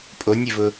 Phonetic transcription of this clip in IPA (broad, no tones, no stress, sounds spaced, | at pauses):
pʼ o nʲ ɪ v ʊ